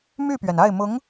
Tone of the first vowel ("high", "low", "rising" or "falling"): falling